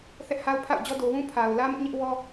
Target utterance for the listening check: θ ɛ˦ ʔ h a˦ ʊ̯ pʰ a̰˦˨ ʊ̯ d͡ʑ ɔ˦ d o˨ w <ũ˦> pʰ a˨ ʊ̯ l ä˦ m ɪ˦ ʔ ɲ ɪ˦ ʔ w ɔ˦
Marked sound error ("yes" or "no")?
no